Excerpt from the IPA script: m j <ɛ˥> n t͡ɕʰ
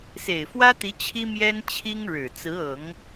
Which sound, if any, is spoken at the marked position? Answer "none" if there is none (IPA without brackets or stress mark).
ɛ˥